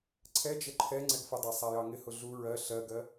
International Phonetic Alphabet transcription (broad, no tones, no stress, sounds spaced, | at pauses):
ǀʰ ɛ d͡ʒ ə ǃʰ ɛ ŋ͡ǀ ɛ ɡ f ə dˤ æ sˤ æ j ɑ ŋ ɪ h ʊ ɮ u ɹ ɜ ɬ ɜ ɡ ɜ